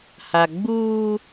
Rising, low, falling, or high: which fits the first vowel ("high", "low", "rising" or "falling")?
low